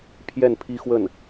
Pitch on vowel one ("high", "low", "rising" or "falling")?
falling